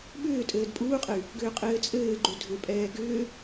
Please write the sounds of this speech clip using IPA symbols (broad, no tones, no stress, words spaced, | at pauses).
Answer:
ɓʏːtʼɘːd pʼuːqʼɘy̯ | ɡʏːqʼɘːt͡sʼɘːɡ͡ǃu dʱʏpʼɛː ɡʏː